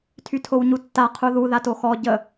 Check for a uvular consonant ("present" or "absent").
present